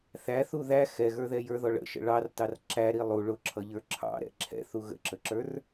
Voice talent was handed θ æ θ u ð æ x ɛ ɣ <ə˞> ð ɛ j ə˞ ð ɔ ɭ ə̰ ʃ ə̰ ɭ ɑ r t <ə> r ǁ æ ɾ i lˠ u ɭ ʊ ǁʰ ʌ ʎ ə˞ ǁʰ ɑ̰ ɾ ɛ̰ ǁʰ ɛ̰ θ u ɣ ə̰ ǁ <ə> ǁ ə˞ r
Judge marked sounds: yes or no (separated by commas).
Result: yes, no, yes